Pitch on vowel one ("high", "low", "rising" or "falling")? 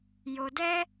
high